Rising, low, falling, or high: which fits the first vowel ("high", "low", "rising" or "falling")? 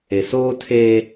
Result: low